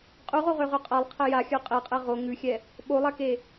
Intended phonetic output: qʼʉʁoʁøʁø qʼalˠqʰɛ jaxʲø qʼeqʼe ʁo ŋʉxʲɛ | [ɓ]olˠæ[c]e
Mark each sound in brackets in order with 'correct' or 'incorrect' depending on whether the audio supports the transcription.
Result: correct, incorrect

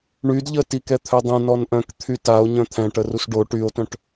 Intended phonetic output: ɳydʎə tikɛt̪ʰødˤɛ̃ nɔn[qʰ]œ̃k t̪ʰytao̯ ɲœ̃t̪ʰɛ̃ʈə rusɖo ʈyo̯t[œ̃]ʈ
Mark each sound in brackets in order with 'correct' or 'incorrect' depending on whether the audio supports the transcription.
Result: incorrect, correct

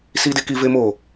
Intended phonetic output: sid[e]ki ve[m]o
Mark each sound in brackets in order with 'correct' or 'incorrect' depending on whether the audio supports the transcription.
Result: correct, correct

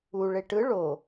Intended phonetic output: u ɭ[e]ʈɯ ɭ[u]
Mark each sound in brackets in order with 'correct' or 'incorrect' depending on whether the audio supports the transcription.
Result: correct, incorrect

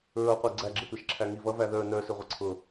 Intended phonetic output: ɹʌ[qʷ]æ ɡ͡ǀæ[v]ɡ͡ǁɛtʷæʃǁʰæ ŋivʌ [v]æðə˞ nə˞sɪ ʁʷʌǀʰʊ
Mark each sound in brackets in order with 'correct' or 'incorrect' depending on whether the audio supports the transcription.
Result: correct, incorrect, correct

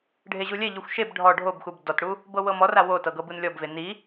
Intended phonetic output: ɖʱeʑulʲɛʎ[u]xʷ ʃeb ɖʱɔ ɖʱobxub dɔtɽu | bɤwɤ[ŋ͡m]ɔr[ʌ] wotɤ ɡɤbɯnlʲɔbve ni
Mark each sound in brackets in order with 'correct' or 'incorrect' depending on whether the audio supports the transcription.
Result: correct, incorrect, incorrect

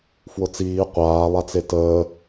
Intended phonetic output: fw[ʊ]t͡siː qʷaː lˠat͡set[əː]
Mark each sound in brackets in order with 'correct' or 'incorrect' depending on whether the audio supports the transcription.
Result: correct, correct

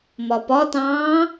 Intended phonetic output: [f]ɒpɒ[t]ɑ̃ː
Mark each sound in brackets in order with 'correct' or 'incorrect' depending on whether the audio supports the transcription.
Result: incorrect, correct

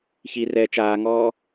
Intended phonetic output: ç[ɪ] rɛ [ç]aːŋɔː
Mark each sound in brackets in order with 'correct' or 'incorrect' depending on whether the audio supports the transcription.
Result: incorrect, incorrect

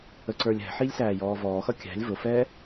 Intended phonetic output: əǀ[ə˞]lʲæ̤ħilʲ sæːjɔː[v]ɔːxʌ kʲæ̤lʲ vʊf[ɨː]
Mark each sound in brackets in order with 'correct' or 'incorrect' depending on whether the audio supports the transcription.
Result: correct, correct, incorrect

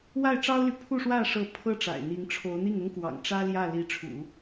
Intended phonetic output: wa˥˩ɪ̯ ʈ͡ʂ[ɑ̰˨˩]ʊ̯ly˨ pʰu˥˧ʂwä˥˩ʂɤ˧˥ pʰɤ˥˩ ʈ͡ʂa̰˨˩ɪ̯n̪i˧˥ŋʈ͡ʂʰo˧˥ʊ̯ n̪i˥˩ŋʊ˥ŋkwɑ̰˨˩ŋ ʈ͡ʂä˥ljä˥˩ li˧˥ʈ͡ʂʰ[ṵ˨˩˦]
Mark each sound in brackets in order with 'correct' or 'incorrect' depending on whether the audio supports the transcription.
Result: incorrect, correct

